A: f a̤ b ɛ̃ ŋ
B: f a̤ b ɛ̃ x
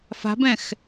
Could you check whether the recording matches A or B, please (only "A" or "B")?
B